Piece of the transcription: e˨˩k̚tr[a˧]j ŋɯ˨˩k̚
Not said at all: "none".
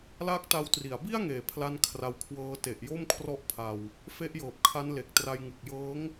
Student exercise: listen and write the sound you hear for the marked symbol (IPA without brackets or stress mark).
a˧